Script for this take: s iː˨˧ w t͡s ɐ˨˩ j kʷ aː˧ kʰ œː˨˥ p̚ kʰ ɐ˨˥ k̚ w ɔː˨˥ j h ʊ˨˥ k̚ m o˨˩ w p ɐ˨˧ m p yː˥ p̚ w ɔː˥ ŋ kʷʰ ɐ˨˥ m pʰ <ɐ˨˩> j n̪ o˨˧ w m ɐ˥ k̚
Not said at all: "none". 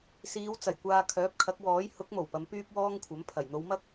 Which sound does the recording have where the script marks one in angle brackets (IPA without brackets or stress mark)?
ɐ˨˩